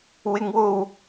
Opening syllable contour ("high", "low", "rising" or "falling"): high